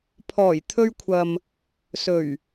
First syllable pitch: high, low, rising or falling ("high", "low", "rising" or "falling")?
low